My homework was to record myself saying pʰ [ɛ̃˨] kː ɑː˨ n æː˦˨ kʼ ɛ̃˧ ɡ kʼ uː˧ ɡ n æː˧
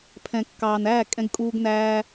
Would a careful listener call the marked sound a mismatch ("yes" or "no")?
no